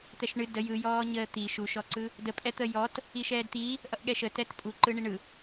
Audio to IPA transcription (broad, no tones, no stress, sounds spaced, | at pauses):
t̪ ɛ ʃ ɳ ɨ d ə j ɯ j ɔː ɲ əː t̪ i ʃ u ʃ ɔ ǀ ɯ | d ə pʼ ɛ t̪ ə j ɔ t | i ʃ ɛː d t̪ i | ʔ ʌ ʔ ɠ ɛ ʃ ə t ɛ t pʼ u ǃ ɯ ɳ i ɳ ɯ